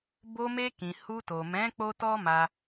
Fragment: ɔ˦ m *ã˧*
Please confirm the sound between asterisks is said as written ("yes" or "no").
no